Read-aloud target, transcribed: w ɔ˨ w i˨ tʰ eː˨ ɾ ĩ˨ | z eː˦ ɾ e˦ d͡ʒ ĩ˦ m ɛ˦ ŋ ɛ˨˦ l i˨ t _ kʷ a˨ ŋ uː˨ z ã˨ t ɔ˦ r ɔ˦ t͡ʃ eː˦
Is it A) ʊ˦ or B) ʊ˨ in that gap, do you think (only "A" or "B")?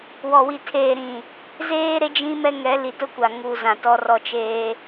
A